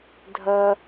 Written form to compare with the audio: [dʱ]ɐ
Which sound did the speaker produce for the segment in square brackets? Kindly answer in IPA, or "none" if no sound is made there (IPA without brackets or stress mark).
dʱ